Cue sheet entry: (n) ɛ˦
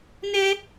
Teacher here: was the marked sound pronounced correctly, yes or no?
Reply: yes